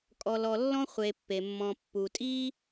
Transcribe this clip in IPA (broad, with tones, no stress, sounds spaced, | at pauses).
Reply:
kʼ ɔ˨ l ɔ˨ lː ɔ̃˥ χʷ e˨ pː e˩ mː ɔ̃˨ pː u˩ tʼ i˥